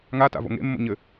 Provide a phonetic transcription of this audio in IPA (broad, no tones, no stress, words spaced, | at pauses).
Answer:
ŋata̰ vo̰ŋḛmːo̰ ɲɘ